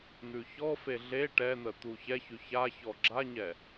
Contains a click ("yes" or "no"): yes